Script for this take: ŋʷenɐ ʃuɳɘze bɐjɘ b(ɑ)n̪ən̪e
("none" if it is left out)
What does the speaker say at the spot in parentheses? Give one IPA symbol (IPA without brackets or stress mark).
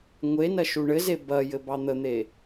ɑ